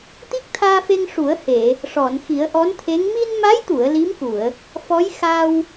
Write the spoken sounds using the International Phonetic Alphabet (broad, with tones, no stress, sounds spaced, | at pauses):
t̪ i˦˥ k̚ t̪ʰ aː˧ f e˧ ŋ ʂ u˨˩˦ ə̯ h e˨˩˨ | ʂ ɔ˨˩˨ n x i˨˩˦ ə̯ ʔ ɔ˧˥ n t̪ʰ e˧˥ ŋ m i˧ n m a˧˥ j t̪ u˨˩˨ ə̯ l i˧˥ m k u˨˩˨ ə̯ | f ɔ˧˥ j x a˧ w